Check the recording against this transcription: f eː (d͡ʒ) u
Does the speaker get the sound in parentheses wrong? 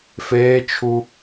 yes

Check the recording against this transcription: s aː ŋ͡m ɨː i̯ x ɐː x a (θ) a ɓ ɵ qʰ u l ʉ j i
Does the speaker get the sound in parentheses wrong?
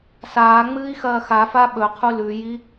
yes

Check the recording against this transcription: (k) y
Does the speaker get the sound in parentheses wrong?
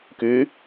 no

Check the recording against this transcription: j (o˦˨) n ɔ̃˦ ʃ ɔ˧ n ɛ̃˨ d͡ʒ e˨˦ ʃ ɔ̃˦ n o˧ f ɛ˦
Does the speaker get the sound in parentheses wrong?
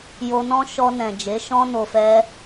yes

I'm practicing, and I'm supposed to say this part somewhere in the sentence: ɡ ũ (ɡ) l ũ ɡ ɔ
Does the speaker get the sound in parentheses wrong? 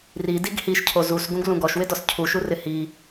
no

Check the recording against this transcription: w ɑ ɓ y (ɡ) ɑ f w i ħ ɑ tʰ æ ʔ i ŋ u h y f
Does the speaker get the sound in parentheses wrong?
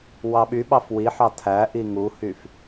yes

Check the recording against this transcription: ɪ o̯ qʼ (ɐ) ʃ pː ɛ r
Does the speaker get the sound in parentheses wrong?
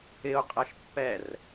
no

